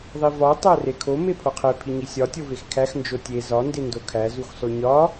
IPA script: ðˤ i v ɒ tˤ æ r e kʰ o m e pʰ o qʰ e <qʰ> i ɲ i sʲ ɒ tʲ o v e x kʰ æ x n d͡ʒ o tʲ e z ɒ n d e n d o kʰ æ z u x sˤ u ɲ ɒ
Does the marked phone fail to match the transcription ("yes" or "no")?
yes